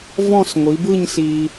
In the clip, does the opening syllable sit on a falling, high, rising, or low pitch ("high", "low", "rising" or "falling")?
falling